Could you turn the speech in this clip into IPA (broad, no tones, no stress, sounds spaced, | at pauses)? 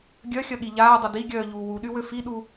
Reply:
ɡʲ œ xʲ ɐ ɠ i ʎ aː dˤ ɐ d i ɡʲ œː ʎ uː w u ɗ y w ø f i ɗ u